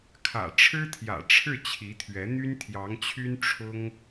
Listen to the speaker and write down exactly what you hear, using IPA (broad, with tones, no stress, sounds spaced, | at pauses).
kʰ ä̰˨˩ ʈ͡ʂʰ ɻ̩˥ t̪ʰ j ä̰˨˩ ʈ͡ʂʰ ɻ̩˥˩ t͡ɕʰ i˧˥ t̪ʰ ɥ ɛ˧˥ n̪ y˥ n t̪ʰ j ɑ˧˥ ŋ t͡ɕʰ y˥ n ʈ͡ʂʰ ʊ˥ ŋ